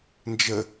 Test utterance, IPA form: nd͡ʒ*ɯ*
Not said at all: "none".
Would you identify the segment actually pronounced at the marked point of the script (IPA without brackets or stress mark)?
ə